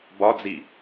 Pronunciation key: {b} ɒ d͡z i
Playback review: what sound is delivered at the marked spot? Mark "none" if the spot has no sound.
b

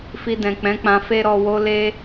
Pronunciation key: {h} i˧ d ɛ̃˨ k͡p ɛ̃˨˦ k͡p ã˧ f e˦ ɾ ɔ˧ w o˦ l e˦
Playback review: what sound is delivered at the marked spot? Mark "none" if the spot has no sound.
f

